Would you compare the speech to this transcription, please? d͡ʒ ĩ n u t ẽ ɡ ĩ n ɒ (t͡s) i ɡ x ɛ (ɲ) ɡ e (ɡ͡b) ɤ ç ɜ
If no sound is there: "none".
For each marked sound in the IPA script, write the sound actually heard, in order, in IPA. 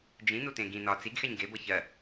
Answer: t͡s, ɲ, b

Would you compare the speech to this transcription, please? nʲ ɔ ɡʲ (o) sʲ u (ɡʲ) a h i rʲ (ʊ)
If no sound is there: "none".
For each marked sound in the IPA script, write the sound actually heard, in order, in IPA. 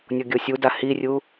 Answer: o, d, u

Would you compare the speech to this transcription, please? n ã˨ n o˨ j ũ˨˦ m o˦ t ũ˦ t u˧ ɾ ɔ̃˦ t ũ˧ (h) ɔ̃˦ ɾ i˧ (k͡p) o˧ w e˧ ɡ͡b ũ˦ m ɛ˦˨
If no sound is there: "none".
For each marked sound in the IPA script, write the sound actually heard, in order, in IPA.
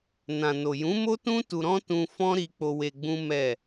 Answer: f, k͡p

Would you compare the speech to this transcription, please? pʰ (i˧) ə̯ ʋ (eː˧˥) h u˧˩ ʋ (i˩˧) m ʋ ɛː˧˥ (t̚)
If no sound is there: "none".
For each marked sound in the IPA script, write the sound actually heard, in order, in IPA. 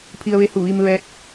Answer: i˧, e˧˥, i˧, t̚

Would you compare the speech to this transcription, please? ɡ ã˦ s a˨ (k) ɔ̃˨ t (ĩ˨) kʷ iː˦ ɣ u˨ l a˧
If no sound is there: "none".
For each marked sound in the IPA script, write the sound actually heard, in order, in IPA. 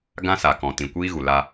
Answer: k, ĩ˨

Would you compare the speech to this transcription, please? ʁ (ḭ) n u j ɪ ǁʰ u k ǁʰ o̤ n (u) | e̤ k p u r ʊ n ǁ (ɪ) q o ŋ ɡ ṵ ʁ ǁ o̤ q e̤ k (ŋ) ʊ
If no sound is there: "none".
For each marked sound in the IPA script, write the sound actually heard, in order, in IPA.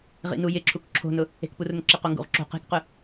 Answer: ḭ, ʊ, ɪ, q

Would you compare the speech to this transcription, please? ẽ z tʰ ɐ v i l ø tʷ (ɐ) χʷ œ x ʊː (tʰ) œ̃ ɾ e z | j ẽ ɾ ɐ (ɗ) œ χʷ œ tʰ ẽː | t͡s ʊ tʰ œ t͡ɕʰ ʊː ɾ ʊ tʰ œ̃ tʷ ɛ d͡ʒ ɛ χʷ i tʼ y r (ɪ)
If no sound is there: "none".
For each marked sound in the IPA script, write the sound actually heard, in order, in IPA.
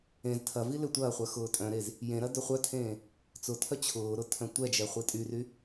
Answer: ɐː, tʼ, d, y

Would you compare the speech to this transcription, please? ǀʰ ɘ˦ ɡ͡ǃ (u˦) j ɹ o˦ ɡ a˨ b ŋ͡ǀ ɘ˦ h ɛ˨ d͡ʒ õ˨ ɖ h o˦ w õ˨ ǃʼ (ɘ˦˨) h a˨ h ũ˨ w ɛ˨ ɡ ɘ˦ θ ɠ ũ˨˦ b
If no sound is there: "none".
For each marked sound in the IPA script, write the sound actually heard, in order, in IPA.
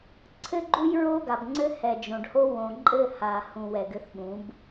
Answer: u˦, ɘ˦˨

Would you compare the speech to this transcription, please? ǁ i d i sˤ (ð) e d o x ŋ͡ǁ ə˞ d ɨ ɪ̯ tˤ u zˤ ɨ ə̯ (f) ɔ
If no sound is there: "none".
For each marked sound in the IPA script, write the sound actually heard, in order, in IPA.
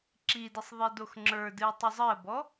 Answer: ðˤ, b

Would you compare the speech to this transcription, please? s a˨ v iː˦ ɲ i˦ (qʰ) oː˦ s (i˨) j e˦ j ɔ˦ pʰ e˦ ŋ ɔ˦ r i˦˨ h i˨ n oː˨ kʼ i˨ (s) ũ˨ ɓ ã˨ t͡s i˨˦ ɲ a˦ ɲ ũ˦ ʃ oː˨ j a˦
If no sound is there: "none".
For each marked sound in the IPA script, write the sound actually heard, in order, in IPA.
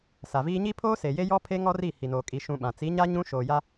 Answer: pʰ, e˨, ʃ

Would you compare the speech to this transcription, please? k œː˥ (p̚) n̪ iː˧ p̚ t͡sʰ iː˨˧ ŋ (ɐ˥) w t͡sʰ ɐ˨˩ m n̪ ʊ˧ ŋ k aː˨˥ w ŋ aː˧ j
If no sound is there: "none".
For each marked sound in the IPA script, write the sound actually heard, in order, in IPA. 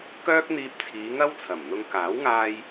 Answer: k̚, ɐ˥

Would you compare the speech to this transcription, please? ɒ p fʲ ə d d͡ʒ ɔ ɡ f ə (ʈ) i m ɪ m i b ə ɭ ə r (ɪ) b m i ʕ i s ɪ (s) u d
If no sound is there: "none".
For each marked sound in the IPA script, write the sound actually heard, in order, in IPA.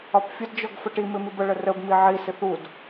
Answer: ʈ, ə, θ

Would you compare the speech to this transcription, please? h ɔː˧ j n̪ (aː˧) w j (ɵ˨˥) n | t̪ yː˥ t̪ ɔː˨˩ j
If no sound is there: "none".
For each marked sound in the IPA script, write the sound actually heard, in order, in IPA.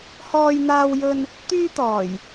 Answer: aː˧, ɵ˧

